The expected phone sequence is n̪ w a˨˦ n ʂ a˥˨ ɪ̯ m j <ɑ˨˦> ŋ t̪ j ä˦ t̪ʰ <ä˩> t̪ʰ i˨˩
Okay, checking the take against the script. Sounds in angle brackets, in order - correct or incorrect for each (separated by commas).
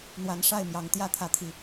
correct, incorrect